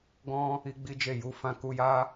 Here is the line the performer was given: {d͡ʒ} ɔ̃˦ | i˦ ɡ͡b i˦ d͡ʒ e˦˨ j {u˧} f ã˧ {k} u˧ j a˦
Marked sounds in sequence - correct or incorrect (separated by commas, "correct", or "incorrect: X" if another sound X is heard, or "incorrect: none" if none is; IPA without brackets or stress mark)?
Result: incorrect: ɡ, correct, correct